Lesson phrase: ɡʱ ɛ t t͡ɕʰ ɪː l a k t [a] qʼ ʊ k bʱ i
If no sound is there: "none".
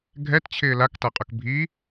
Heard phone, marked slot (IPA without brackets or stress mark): a